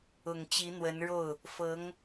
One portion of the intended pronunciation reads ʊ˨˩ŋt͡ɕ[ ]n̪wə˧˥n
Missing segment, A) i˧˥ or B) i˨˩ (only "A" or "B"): A